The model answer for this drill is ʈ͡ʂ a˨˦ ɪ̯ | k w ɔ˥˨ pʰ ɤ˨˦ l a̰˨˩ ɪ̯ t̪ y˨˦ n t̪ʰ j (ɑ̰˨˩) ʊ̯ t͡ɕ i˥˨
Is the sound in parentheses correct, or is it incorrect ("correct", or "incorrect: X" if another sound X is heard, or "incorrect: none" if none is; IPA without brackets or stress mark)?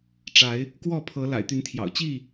correct